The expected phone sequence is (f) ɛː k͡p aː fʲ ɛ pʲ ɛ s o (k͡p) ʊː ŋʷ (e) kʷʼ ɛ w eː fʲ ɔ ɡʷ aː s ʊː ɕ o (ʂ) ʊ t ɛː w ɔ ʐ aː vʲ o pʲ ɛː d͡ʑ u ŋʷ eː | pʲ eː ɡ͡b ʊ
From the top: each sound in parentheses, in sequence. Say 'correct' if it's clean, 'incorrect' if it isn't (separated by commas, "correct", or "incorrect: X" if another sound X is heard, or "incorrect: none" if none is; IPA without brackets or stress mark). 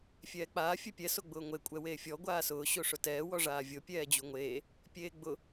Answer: incorrect: fʲ, incorrect: ɡ͡b, correct, correct